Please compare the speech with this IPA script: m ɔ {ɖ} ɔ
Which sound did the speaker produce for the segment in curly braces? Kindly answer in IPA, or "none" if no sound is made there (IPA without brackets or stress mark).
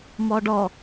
ɖ